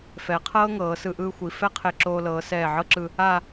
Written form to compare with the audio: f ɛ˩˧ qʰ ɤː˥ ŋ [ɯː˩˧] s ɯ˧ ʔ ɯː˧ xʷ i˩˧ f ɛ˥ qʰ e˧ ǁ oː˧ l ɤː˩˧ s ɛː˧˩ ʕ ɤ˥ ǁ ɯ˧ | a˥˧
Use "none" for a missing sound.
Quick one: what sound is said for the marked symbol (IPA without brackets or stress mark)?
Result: ɤː˩˧